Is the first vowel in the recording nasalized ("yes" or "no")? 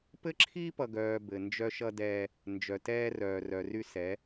no